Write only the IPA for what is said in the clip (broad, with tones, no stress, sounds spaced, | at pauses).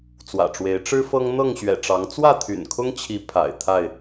t͡s w ä̰˨˩ ʈ͡ʂ w e˨˦ ɪ̯ ʈ͡ʂ ɻ̩˦ f ɤ˦ ŋ n̪ ɤ˥˨ ŋ ɕ ɥ ɛ̰˨˩ ʈ͡ʂ ɑ˨˦ ŋ t͡s w ä˥˨ t̪ʰ y̰˨˩ n kʰ ʊ˦ ŋ t͡ɕʰ i˨˦ pʰ a̰˨˩ ɪ̯ t̪ʰ a˥˨ ɪ̯